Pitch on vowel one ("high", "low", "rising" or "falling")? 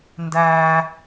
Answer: high